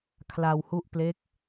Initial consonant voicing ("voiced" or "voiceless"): voiceless